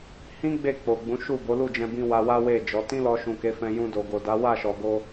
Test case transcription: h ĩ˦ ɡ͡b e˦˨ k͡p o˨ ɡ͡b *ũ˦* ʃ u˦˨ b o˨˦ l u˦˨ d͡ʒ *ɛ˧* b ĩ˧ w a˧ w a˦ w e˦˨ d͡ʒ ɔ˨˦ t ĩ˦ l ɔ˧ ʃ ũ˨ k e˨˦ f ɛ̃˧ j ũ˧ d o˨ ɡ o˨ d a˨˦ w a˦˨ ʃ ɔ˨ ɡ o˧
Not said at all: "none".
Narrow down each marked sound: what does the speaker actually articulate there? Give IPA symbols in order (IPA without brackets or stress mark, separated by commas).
ũ˨˦, ɛ̃˧